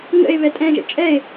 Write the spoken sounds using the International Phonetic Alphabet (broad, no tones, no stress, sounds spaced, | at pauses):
ŋ ə̰ e̯ β ɛ tʼ ɛ̃ ʒ ə̰ t͡ʃʼ ɛ e̯